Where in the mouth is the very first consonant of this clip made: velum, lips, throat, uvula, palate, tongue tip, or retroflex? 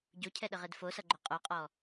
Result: palate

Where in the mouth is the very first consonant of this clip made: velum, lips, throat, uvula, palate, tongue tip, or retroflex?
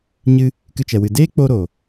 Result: palate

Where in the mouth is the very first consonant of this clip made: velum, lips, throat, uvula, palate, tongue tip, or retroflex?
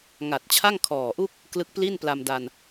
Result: velum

